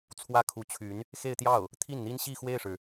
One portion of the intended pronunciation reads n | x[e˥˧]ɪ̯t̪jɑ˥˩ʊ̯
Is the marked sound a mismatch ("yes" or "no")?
no